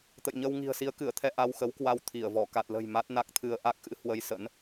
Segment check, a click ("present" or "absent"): absent